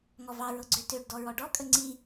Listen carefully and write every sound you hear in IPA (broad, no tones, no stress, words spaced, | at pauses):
ŋɔvɑɹɤɡ͡ǀø tøɖ dɔɹɔɖɔkʼə ŋ͡ǀi